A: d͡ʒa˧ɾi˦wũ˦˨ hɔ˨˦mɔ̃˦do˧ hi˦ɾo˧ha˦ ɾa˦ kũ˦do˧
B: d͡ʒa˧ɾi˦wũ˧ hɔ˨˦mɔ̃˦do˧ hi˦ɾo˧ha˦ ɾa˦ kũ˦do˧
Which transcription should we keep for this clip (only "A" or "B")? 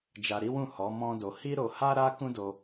A